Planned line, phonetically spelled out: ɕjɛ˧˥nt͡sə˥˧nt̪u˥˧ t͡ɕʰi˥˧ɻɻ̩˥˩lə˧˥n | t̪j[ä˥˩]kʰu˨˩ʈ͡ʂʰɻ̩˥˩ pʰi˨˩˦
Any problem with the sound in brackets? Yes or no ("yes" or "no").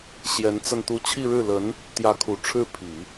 yes